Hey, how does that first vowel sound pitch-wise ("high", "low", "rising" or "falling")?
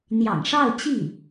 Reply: low